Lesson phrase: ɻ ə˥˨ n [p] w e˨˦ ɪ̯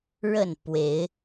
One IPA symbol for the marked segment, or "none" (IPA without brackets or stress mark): p